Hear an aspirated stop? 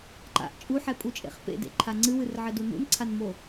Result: yes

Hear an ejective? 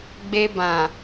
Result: no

